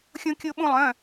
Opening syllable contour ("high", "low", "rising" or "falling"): high